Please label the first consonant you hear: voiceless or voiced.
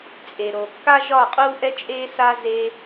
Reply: voiceless